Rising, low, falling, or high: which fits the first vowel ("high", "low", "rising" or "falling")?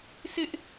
high